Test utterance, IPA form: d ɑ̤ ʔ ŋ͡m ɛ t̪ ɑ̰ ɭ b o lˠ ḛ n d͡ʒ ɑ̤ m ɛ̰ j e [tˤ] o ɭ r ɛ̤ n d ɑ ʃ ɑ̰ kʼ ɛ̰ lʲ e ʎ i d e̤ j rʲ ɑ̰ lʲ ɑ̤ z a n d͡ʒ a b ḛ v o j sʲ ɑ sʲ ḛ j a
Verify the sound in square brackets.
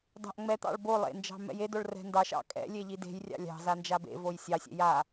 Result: incorrect: d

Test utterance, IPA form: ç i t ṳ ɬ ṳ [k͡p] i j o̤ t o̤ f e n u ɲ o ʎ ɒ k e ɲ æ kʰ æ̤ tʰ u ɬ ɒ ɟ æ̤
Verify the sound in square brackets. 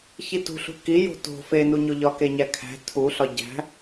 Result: incorrect: k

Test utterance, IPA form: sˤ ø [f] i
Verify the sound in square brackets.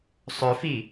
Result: correct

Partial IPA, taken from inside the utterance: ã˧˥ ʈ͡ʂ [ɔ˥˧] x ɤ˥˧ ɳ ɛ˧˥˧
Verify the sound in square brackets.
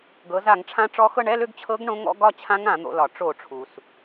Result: incorrect: ɔ˧˥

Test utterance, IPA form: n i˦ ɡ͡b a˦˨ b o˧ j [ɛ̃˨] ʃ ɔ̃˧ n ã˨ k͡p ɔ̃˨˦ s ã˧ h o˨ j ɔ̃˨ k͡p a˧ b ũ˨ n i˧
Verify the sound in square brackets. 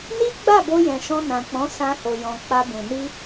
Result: correct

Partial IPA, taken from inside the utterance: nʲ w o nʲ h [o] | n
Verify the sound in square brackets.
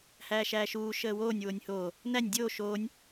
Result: incorrect: oː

